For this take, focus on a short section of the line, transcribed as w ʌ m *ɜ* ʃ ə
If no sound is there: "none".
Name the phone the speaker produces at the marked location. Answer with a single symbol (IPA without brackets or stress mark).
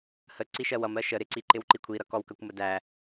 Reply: ɜ